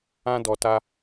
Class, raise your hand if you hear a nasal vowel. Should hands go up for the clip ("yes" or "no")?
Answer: yes